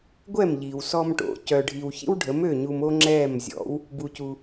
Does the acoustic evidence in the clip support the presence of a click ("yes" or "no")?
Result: yes